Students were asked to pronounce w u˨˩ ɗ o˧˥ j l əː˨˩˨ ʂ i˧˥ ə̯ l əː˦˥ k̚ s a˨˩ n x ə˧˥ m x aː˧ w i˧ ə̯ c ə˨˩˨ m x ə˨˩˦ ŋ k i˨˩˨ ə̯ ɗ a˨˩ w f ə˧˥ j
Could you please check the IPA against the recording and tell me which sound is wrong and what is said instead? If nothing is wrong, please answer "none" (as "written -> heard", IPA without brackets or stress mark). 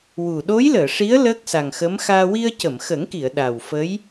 n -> ŋ